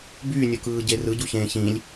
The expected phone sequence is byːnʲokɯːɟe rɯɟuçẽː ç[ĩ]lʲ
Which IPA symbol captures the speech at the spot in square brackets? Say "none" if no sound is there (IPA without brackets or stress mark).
ĩ